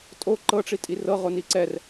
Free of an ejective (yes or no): no